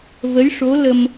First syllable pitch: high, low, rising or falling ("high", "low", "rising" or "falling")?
rising